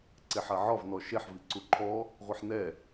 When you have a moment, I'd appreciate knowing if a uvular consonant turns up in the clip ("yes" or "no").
yes